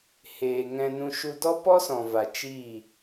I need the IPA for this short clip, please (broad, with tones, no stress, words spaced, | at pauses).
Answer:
heː˧ ŋɛ̃˧ nũ˧ʃu˧dɔ˦ pɔ˦sɔ̃˨va˨ t͡ʃiː˦˨